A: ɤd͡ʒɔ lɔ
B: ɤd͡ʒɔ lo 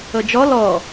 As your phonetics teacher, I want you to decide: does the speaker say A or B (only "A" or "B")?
A